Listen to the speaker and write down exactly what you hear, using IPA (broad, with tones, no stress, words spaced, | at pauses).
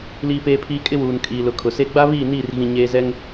liː˦peː˦pʰiː˦ kʼɪ˦wuː˨n kʼiː˨lʊ˨ kʰʊ˨se˦ ɡ͡ba˦βiː˦˨niː˦˨r ɣĩ˦ ɲeː˦ zɛ˦ŋ